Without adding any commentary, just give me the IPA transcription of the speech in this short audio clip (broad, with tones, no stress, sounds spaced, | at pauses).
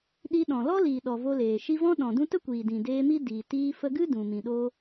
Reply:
ɗ i˧ ɗ ɔ̃˨ l ɔ˦ l iː˨ ɗ ɔ˨ v o˧ l eː˨ ʃ i˧ v ɔ̃˦ ɗ ɔ̃˨ d ũ˧ t ə˦ kʷ iː˨ d ĩ˨ d eː˧ m i˦ d iː˨ t iː˧ f ə˧ ɡ ɨ˦ d ũ˨ m ĩ˨ ɗ o˦